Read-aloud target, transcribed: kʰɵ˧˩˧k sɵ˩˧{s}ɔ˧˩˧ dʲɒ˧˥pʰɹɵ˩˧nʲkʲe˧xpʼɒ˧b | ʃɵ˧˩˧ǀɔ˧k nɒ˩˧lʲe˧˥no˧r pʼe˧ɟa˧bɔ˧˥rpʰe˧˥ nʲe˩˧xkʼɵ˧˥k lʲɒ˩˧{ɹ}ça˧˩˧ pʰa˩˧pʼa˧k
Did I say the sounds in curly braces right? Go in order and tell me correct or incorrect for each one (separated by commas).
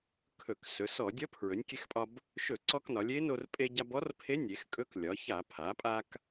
correct, incorrect